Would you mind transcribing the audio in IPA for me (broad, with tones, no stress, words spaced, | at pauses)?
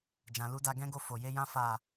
d͡ʒã˨lu˨˦da˧ ɡɛ̃˦ɡo˦˨ fo˨je˧jã˦ fa˦˨